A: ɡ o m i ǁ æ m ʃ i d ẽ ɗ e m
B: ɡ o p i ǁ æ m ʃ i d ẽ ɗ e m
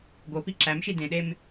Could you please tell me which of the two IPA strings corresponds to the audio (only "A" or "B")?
B